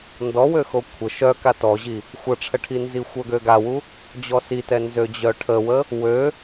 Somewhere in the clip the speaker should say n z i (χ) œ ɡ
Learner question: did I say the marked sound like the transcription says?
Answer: no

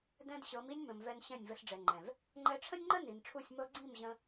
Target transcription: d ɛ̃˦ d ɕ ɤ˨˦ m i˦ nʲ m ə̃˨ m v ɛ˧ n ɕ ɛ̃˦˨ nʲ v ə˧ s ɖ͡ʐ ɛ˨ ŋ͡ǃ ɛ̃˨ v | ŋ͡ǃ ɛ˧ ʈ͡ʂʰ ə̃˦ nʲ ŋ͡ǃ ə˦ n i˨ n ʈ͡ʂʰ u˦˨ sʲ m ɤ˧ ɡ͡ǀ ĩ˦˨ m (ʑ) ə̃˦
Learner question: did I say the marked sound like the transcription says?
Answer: yes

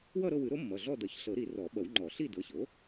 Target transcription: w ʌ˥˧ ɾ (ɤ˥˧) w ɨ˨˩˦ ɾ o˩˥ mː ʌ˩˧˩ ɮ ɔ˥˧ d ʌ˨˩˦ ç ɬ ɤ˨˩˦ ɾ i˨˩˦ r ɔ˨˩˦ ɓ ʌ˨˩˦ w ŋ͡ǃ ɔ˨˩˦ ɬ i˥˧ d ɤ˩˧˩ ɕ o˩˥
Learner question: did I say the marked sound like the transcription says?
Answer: yes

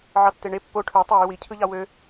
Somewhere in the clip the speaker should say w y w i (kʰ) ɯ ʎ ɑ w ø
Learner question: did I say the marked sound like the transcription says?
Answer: no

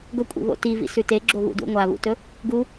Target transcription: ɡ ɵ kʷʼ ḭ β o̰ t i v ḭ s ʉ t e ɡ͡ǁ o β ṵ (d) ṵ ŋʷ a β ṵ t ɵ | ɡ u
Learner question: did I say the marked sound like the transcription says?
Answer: yes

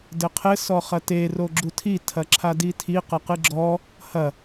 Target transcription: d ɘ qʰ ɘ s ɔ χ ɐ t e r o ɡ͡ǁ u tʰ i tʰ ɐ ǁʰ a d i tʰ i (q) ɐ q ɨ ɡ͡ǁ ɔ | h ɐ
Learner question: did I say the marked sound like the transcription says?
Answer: yes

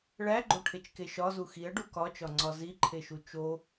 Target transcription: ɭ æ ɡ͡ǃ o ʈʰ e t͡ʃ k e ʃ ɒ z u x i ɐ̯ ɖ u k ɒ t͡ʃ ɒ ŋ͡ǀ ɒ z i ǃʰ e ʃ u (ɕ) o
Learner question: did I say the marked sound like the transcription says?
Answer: no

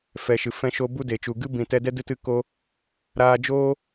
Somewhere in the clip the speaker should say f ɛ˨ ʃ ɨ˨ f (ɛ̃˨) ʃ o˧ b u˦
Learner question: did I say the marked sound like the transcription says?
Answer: no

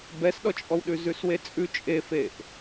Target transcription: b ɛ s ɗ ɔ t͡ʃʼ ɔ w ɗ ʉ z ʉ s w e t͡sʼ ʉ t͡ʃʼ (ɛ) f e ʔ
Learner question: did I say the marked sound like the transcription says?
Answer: no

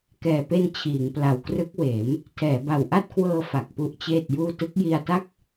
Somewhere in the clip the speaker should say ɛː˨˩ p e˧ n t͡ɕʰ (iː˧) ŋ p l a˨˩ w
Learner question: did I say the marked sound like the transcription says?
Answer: no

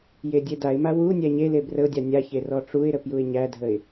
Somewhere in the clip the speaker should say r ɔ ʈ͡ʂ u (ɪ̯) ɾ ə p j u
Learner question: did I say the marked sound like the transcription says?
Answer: yes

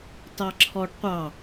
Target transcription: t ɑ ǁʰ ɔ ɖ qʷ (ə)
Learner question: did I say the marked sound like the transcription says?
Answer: no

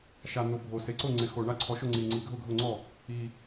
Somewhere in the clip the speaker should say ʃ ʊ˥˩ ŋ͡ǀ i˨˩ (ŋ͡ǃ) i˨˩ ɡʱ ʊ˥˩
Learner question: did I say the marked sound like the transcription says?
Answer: no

